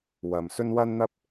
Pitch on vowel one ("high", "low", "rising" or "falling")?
low